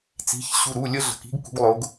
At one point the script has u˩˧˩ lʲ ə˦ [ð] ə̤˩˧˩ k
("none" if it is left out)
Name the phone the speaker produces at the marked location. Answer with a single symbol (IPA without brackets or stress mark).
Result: ɮ